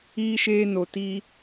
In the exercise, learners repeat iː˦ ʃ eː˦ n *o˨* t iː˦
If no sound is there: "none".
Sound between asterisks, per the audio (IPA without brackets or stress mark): o˨